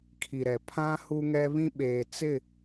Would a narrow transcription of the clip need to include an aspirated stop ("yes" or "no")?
yes